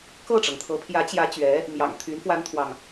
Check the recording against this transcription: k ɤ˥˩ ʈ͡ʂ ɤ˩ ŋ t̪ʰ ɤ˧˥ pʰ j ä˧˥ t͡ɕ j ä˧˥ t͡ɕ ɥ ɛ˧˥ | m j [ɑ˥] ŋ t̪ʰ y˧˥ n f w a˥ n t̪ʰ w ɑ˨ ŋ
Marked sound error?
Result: yes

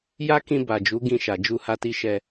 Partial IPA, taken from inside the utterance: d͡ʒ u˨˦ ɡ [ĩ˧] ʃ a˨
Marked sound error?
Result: no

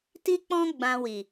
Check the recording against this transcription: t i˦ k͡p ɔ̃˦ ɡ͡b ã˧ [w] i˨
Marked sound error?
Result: no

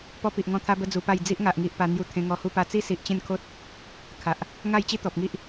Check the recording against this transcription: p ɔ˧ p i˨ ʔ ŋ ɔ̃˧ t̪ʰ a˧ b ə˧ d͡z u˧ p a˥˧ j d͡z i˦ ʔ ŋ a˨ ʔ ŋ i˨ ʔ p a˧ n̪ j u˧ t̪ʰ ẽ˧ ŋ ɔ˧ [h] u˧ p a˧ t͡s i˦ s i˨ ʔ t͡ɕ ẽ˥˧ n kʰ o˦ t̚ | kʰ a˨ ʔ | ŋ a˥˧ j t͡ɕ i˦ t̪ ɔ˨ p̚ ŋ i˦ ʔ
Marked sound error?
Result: no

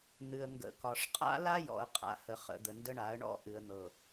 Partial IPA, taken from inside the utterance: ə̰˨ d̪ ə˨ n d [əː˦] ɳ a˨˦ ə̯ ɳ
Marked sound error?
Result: yes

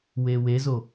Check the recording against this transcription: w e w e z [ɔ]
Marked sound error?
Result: yes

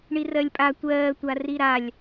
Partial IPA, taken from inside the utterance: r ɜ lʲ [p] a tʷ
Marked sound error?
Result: yes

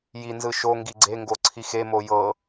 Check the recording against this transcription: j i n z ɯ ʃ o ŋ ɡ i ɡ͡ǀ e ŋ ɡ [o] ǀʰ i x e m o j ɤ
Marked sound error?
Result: no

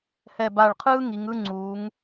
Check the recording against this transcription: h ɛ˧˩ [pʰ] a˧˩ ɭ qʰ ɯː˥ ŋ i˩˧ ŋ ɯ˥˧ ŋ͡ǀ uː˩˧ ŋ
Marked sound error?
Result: yes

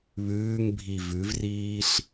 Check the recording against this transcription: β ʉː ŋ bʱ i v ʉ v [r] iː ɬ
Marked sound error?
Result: no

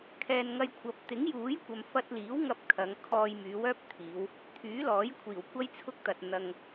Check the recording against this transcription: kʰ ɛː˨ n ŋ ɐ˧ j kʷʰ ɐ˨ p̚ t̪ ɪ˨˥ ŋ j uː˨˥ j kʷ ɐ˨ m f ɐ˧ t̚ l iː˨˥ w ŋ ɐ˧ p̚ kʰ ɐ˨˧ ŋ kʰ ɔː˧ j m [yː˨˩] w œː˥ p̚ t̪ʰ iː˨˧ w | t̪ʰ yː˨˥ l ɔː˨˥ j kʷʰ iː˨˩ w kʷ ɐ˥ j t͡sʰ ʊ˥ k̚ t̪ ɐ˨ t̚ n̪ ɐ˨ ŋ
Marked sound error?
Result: yes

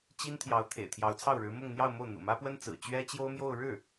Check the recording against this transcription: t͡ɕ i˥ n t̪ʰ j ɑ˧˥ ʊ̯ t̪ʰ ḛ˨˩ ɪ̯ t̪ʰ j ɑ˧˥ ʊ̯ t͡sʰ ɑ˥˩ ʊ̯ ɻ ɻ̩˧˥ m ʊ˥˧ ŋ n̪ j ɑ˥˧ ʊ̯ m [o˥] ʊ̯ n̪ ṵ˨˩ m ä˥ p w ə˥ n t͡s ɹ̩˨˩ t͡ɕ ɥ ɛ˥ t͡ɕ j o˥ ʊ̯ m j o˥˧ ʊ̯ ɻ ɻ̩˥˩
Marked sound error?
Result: yes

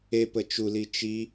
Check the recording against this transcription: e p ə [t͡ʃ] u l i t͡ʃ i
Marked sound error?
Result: no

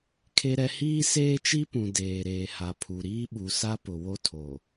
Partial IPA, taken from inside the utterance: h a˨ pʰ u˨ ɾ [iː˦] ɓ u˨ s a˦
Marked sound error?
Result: no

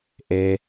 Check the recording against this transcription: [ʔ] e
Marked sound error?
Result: no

